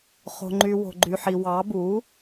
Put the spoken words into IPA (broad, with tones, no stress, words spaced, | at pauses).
χo̤˨ŋ͡ǃy˨ wo̤˨ɡ͡ǃy˨ħi˨ wɑ˩˥bu˩˥